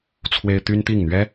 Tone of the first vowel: high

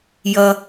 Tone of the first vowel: low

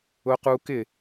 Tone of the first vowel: high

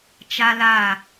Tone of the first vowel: high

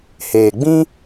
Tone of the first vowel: low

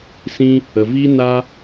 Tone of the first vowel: high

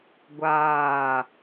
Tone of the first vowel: falling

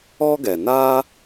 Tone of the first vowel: high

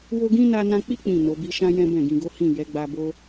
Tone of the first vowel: high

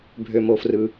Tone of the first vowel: low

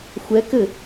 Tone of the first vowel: rising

